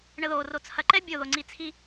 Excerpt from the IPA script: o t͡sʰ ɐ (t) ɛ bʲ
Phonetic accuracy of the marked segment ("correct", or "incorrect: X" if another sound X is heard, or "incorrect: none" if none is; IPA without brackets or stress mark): incorrect: ǃ